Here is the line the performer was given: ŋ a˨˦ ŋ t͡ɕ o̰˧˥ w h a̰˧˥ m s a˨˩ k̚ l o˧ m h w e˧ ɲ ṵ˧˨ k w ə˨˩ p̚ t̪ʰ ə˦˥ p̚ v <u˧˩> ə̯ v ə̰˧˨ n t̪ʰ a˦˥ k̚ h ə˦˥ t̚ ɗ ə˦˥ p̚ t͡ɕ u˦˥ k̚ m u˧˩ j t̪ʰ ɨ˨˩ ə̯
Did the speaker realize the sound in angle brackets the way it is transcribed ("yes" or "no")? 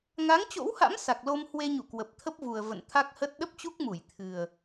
no